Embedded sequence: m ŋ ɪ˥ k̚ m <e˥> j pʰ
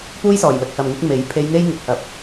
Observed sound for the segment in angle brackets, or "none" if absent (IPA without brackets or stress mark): e˨˥